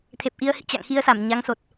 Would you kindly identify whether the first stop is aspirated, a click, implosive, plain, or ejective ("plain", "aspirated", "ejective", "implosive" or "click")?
aspirated